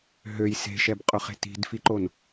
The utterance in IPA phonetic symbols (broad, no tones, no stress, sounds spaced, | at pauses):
ɦ ø j s e̤ ʃ ɛ b qʼ ʊ χ e̤ t i̤ d f i ǃ o n